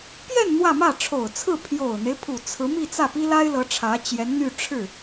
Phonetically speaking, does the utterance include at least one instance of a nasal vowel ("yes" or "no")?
no